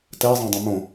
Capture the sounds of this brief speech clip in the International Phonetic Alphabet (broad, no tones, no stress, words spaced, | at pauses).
tɛzˤɛ̃dˤẽ mõ